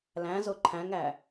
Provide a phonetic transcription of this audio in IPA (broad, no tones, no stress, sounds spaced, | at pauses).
l æ̃ z o ǃʰ æ̃ ŋ æ